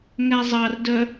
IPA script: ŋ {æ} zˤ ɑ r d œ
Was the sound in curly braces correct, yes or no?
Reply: yes